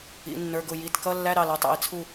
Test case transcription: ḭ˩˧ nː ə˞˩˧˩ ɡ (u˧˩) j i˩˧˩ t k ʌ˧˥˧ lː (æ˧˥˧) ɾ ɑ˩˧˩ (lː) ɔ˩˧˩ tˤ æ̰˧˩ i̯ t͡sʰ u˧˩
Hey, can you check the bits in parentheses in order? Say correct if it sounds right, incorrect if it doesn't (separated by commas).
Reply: incorrect, correct, incorrect